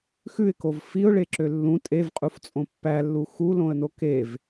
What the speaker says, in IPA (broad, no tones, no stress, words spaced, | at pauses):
xʉɪ̯kov fiʊ̯ɭeǁø lːũ tʼevqʼuft͡sʼõ pːælːu xulõə̯no kev